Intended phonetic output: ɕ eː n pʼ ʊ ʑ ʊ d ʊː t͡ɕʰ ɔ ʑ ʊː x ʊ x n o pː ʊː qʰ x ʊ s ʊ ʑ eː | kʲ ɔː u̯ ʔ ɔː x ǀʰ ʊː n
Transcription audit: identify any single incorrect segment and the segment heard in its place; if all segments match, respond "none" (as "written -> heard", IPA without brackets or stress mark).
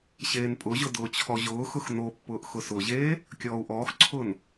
qʰ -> ʔ